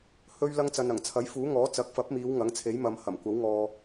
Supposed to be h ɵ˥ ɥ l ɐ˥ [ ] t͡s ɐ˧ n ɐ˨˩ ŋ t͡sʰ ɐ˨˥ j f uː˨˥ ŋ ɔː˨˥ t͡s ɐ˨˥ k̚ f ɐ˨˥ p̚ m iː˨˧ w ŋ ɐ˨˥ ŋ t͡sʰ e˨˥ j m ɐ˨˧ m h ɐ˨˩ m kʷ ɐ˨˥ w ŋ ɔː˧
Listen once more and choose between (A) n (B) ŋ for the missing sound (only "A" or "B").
B